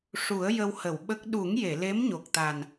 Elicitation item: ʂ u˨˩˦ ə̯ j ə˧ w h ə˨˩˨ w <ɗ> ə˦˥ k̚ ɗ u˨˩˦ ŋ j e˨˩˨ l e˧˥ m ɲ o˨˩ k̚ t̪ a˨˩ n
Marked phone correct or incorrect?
incorrect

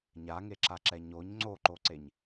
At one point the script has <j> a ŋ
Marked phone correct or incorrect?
incorrect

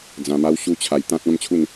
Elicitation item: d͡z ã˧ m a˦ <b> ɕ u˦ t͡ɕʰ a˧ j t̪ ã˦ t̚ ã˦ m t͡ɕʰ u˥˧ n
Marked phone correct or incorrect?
incorrect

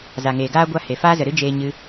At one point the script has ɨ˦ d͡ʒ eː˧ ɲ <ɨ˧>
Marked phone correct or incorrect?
correct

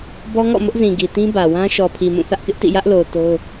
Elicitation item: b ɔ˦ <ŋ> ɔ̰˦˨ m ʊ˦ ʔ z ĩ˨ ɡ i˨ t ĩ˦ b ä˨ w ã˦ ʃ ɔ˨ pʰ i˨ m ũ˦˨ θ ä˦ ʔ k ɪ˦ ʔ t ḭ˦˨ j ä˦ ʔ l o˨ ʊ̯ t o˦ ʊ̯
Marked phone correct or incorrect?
correct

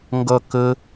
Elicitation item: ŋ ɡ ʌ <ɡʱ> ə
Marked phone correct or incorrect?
incorrect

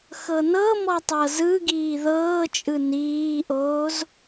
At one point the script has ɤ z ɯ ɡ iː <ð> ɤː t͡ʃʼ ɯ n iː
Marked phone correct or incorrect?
correct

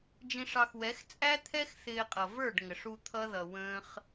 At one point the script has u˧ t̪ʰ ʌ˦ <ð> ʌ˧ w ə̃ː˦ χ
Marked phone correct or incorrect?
correct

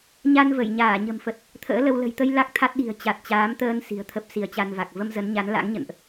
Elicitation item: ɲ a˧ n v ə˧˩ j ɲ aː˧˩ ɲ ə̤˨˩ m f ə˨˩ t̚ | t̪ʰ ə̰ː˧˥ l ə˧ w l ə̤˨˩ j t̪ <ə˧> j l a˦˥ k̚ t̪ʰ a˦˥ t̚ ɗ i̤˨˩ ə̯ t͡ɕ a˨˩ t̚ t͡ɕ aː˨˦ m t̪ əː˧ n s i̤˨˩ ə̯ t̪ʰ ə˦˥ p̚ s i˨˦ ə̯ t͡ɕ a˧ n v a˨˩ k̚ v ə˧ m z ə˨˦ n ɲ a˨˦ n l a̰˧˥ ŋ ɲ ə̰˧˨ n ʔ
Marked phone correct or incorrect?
correct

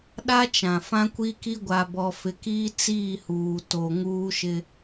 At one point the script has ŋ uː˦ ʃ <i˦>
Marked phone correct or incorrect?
incorrect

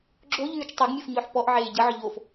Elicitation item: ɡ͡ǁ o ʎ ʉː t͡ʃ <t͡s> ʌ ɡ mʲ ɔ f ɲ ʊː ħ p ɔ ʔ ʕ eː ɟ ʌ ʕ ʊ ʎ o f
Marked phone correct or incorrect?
incorrect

